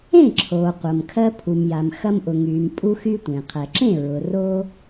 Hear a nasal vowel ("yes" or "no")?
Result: yes